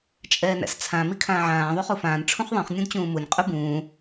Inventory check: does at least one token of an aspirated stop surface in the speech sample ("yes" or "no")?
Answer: yes